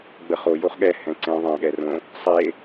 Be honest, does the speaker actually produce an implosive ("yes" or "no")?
yes